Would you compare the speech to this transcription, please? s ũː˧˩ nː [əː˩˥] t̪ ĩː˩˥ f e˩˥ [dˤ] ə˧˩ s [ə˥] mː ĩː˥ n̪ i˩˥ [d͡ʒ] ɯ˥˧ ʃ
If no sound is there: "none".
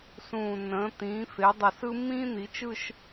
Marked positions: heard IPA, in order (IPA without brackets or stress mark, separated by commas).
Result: ə̃ː˩˥, dˤ, ɯ˥, t͡ʃ